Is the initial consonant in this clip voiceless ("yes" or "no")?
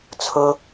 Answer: yes